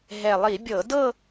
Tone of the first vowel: low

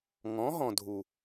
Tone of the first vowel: rising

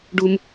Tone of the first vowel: high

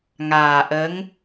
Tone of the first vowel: low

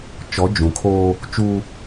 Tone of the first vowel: rising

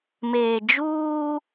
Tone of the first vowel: low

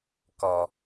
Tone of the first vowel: low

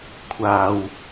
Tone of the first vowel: low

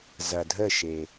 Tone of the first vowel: low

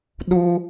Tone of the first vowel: high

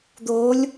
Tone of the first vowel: rising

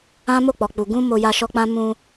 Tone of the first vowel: high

